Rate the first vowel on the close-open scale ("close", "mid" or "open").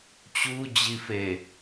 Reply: close